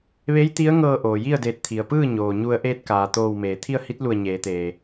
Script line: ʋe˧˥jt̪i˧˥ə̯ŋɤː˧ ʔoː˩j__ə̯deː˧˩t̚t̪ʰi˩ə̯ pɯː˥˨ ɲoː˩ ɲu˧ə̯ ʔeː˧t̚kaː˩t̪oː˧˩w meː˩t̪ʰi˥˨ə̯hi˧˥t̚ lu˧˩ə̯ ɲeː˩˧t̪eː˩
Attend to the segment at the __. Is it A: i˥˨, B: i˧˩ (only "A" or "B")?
A